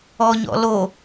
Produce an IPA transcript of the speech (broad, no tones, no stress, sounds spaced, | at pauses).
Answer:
ɔ ɲ ɔ̰ l o